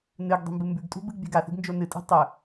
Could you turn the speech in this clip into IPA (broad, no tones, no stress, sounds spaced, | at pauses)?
n ɨ ɡ dˤ i̤ m b ɨ m b ʉ ɡ tʼ ṳ b ɨ ɡ bʲ a̤ ɡ a θ i̤ ɡ n d͡ʒ o n ɨ tʼ i̤ tˤ ɵ